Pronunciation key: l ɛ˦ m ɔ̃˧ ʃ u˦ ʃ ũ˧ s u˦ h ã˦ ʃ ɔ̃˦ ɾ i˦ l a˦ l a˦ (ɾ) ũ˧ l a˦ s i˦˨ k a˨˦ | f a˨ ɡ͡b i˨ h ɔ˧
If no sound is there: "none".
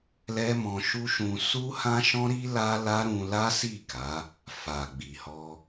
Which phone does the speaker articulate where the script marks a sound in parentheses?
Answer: ɾ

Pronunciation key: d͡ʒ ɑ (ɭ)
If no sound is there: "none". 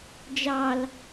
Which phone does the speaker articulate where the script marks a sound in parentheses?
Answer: l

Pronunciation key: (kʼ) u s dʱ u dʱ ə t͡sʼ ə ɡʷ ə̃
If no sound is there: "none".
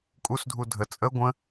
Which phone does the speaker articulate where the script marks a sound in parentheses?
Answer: kʼ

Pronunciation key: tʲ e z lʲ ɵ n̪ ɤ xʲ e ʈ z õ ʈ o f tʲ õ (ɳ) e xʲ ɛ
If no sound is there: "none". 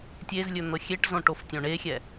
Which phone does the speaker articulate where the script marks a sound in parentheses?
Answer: ɳ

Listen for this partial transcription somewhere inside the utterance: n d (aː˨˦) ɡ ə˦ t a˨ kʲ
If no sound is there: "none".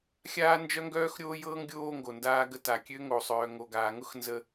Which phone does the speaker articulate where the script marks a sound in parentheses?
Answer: aː˦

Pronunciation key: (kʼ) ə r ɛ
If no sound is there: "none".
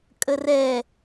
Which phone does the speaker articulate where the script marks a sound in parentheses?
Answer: kʼ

